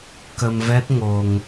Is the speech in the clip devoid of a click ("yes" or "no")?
yes